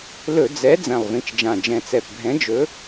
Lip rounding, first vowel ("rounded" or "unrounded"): rounded